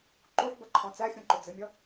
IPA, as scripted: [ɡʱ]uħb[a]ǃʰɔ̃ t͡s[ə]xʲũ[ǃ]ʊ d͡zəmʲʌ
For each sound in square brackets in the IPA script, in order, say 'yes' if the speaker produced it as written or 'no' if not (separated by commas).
no, no, no, yes